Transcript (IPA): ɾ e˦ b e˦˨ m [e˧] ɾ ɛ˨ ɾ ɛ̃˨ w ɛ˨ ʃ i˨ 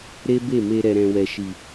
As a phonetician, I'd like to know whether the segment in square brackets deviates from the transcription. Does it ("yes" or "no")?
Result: no